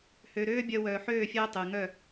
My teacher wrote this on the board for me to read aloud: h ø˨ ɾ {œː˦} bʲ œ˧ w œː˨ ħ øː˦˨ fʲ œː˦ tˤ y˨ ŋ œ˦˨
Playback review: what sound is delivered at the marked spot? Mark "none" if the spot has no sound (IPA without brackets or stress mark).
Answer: øː˦